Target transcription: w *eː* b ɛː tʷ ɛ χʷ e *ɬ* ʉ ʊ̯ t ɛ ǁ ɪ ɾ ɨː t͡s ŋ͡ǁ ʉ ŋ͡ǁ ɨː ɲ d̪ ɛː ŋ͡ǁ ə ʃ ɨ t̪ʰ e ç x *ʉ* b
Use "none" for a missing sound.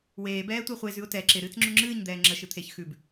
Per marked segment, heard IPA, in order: eː, z, ʉ

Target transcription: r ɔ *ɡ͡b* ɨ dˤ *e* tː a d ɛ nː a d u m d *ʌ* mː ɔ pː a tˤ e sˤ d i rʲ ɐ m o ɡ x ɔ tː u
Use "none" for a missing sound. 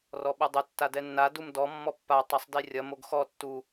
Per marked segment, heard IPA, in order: ɓ, ɘ, ɔ

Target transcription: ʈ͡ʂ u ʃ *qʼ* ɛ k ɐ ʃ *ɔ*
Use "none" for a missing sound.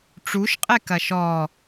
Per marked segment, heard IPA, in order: qʼ, ɔ

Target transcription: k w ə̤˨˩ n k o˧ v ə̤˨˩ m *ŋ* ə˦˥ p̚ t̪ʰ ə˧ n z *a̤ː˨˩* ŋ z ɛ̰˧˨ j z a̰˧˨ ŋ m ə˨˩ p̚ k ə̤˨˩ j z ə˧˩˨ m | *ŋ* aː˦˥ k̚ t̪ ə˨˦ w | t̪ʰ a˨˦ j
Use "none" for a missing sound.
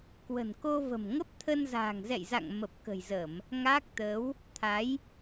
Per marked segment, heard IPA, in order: ŋ, a̤ː˨˩, ŋ

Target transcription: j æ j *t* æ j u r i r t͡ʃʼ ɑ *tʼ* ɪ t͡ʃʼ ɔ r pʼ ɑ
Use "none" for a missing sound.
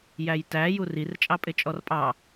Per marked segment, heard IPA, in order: t, pʼ

